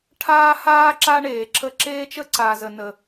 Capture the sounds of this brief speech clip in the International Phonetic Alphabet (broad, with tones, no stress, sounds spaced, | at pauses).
ʈʰ aː˦ h aː˦ ǁ a˦ ɳ eː˨ ǁʰ ə˦ ǁ eː˦ t͡ʃ ə˦ ǀ aː˨ z ə˨ n ə˨